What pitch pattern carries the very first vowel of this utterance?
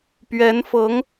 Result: rising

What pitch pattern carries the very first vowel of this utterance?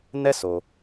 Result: high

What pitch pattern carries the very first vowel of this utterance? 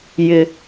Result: low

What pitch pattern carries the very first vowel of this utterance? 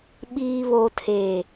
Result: low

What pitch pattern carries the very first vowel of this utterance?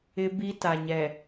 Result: high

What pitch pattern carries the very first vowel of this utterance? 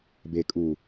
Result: low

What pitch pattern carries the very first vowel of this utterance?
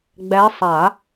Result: rising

